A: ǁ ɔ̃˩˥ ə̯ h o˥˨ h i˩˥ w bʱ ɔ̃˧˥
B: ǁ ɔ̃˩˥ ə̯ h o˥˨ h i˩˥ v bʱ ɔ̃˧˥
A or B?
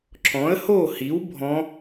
A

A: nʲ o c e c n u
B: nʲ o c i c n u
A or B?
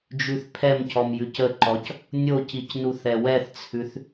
B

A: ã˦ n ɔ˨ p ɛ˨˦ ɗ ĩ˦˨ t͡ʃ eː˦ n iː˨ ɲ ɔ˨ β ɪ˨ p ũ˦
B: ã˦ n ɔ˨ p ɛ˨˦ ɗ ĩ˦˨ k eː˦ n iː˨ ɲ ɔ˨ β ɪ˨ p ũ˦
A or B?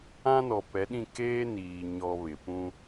B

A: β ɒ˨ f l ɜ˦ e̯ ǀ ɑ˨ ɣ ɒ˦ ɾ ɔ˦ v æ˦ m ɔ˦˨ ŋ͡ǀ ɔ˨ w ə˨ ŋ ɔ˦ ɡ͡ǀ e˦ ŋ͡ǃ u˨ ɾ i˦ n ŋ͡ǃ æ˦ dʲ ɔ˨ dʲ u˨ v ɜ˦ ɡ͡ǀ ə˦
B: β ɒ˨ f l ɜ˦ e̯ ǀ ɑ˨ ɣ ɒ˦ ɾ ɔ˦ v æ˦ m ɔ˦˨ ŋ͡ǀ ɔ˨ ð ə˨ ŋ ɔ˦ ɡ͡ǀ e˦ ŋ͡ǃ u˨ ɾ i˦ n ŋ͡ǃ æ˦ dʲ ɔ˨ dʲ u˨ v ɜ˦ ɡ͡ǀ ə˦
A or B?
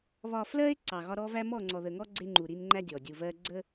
B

